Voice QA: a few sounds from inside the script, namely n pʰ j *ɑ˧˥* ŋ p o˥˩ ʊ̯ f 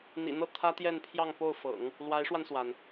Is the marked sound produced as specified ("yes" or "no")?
no